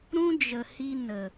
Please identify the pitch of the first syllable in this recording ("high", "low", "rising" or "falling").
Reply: high